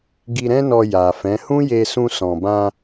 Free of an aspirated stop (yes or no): yes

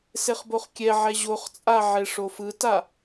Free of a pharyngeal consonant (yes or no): no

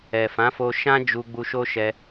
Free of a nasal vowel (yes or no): no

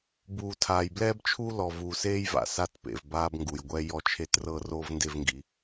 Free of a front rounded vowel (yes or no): yes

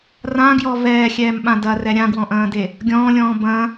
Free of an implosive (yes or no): no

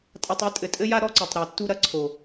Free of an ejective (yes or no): no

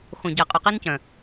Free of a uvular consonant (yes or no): no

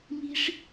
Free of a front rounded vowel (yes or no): yes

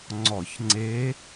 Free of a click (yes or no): no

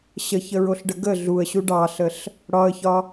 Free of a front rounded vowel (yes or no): yes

